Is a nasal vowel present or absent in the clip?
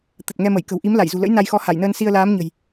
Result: absent